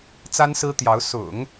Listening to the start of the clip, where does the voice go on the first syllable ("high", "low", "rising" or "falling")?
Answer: high